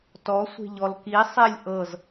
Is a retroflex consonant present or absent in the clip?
absent